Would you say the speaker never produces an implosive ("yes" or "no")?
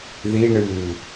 yes